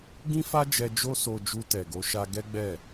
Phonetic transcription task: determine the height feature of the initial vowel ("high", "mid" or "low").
high